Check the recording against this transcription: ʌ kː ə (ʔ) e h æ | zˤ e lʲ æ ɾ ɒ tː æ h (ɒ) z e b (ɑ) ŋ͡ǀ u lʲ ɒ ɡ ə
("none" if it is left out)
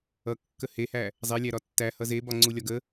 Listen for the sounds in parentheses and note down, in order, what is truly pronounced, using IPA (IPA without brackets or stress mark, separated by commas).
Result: h, ʌ, ɒ